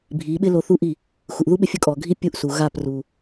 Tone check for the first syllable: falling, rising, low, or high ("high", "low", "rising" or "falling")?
rising